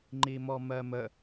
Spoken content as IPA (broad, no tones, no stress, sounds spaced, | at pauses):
ŋ͡ǃ i m ɔ m ɜ m ə